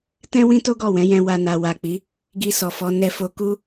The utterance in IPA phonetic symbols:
t ɛ̃˦ w ĩ˦ t o˦ ɡ ɔ˦˨ w ɛ̃˨˦ j ɛ̃˧ w a˧ n a˨ w a˨ k͡p i˨˦ | ɡ i˧ s ɔ˨ f ɔ˨˦ n ɛ˧ f o˧ k u˦

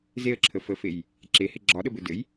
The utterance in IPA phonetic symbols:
z e ə̯ ǁʰ ə f ə f e j | ǁ e h e ɡ͡ǁ ɒ ɗ ə b ɘ d ɘ j

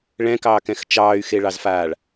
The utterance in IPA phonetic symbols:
ɭ ɛ̃ k ɑː k ɛ̃ x t͡ʃ ɑː y̯ x e ɭ ɑ z f aː ɭ

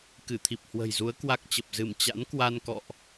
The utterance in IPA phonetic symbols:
k ɨ˧˩ t̪ʰ i˨˩ p̚ h w ə̤˨˩ j z u˨˦ ə̯ k w a˦˥ k̚ t͡ɕ ə˨˩ p̚ z ɨ˧˩ m t͡ɕ a̰˧˥ n k w a˧ n k ɔ̰˧˨ ʔ

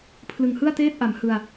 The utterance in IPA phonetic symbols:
pʰ l ɯ˨˩ ŋ h ɯ˥˩ a̯ t eː˥˩ t̚ ʔ a˩˦ m h ɯ˧ a̯

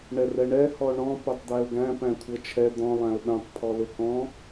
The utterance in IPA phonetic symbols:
ɳ ɛ r ɛ ɳ ɛ h ɔ ɳ ɔ̃ p œ tˤ d̪ æ ʊ̯ ɡ æ̃ p æ̃ kʷʰ ɤ t͡ʃʰ ɛ d̪ ɔ̃ lˠ æ̃ ʊ̯ ɓ œ̃ tˤ pʰ ɔ l ʊ k ɔ̃

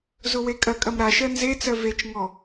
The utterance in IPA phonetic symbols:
z ʊ w e kʼ ɐ kʼ ɐ m ɾ a ʃ ɜ n z e t͡s ɜ v e t͡ʃ ŋ ɔ

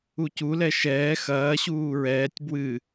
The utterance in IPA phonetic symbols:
u c u l ɛ ʃ ɛː x ɐː ɕ uː ɹ ɛː tʲ b w ɨ

